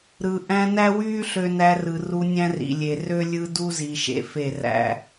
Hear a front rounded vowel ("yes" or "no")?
yes